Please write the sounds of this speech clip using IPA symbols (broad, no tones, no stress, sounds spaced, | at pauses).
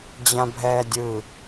d͡ʑ ã bʱ ɛː dʲ ɯ